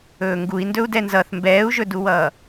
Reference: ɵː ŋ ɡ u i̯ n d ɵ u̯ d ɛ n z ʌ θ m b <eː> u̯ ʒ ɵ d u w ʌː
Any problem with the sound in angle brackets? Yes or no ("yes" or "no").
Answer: yes